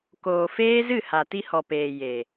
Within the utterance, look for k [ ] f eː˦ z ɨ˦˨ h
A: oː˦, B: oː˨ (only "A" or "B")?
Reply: B